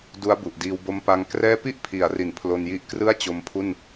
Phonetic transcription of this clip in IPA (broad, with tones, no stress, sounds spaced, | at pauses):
d u˦˥ a̯ b u˨˩ ʔ d iː˧ w b o˦˥ m p a˦˥ ŋ k r ɛː˥˩ p i˥˩ ʔ pʰ i˩˦ a̯ r i˨˩ n pʰ l o˧ n j i˦˥ ʔ k r ɯ˥˩ a̯ t͡ɕ o˦˥ m pʰ u˥˩ n